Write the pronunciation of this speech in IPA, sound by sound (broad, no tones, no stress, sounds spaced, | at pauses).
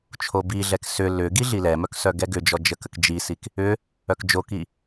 t͡ʃʰ o b i ɮ ɛ k s ʏ l ʏ ɡ i ɮ i l ɛ m œ k s œ ɡ ɛ ɡ ʏ d͡ʒ ɔ d͡ʒ ə k ə k d͡ʒ i s i k | ʏ | œ k d͡ʒ o k i